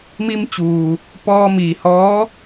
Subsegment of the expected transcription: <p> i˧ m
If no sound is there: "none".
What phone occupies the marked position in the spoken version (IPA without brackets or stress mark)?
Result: m